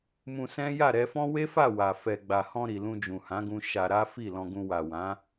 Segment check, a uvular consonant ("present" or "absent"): absent